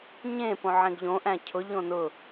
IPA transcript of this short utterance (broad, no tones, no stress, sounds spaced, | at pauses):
ɲ ẽ p õ ʕ ẽ ɡ ʎ õ ʔ æ̃ cʰ ʊ ʎ õ n ʊ